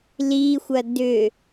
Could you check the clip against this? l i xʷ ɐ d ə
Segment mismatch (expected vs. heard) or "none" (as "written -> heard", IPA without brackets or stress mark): ə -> ʏ